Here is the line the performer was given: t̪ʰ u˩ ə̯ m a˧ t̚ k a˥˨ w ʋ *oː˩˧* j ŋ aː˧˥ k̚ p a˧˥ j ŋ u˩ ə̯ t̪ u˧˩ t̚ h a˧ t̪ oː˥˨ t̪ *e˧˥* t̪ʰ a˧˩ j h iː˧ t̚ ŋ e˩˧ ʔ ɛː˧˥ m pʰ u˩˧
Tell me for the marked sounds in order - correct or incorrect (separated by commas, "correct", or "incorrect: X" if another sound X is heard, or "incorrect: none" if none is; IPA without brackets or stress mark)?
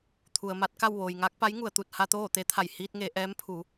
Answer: incorrect: oː˩, correct